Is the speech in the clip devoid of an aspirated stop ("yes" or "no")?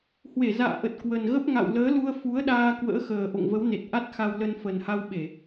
yes